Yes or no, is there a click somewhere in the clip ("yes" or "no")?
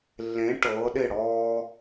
no